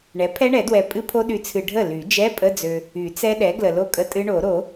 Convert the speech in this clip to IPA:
ɳ ɛ˩˥ pʰ ɛ˦˥ ɳ ɛ˨˩˦ d w ɛ˨ pʼ ɨ˦˥ pʰ o˦˥ ɗ y˨ t͡sʰ ɨ˨ ɖʱ ə˥˩ l y˨˩˦ d͡ʒ ɛ˧˥˧ pʼ ə˧˥˧ d͡z ø˨ | y˨˩˦ t͡s ɛ˦˥ ɗ ɛ˩˥ ɡ l ə˨ l o˥˩ kʼ ə˧˥˧ tʼ ɨ˦˥ ɳ o˨˩˦ ɾ o˨˩˦

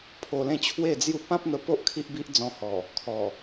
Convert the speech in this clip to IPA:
pʰ o˧ l ẽ˥˧ t͡ɕʰ w e˥˧ d͡z j u˥˧ p ã˦ p̚ n̪ ə˧ p o˦ ʔ kʰ i˦ ʔ b i˦ ʔ d͡z ɔ̃˧ h ɔ˨˩ | kʰ ɔ˨˩

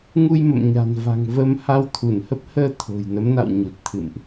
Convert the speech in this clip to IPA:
ŋ u˧ j m ə̰˧˨ m ɲ a̤˨˩ n v a̤˨˩ ŋ v ə˧ m h a˧ w t̪ʰ u˧˩ n h ə˦˥ p̚ h əː˧ t̪ʰ o̤˨˩ j n ə˨˦ m n a̰˧˨ w ɲ u˨˩ t̚ t̪ʰ ɨ̰˧˨ m ʔ

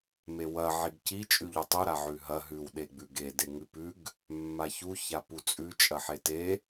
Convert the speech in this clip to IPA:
m e w ɐ ʕ i ɡ c i t͡ʃʼ ʉ ʎ u tˤ u ɾ a ʕ ʉ ɦ ɐ ɦ ʉ w ɗ e ɡ͡b ʉ ɡ e d e ŋ ʉ p ʉ ɡ | mː a ç u ç a p u t͡sʼ ʉ t͡ʃʼ ɐ ħ e t e

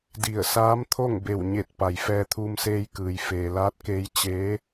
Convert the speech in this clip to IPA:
d i˧˩ ə̯ s aː˧˥ m t̪ʰ o˥˨ ŋ b e˧˩ w ɲ e˧˩ t̚ p a˩ j f ɛː˧ t̪ʰ uː˧ m s eː˧ j k ɯː˩ j f eː˩ l aː˧˥ t̚ k eː˧ j t͡ɕ eː˧˥

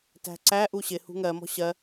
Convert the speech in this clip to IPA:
t æ̤ ǀ æ ʔ u ɕ ɪ h ṳ ŋ ɜ m ɔ̤ ɕ ɜ

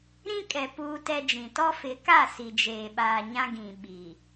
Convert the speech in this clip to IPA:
ɾ ĩ˦ kʼ ɛ˨ p uː˦ t ɛ˦ d͡ʒ ĩ˨ t ɔ˦ f ɪ˨˦ k a˦˨ s i˨ d͡ʒ eː˨ ɓ aː˨ ɲ ã˦ ɡ ĩ˨ ɓ i˨

